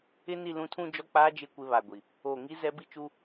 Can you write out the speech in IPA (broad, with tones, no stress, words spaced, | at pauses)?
ɪ˦ni˦˨ lũ˦tʰũ˦ d͡ʒɔ˦k͡paː˦d͡ʒɪ˦˨ kʷɪ˦βa˨ɡʷi˨ | oː˨ŋi˦ zɛ˦bi˦t͡ʃu˦